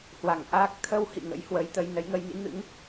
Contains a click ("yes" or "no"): no